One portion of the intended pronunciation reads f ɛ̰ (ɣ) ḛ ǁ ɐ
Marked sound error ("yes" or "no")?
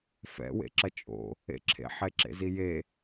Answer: yes